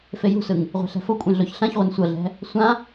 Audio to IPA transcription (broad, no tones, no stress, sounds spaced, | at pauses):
f e j ṳ s ɯ ŋ | ʁʷ e̤ ɬ ɛ̤ f o kʷʼ ẽ ɮ o ç ɬ ã ç ʁʷ ɤ n sʷ ɤ ɮ ɛ̤ | sʷ ã